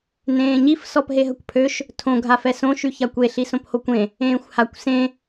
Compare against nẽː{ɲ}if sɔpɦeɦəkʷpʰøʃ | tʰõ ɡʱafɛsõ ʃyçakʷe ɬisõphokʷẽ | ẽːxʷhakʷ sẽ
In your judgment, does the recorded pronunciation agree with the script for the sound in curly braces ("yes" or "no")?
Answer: yes